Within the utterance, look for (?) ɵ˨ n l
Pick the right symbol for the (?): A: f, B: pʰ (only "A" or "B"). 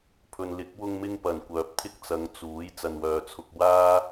B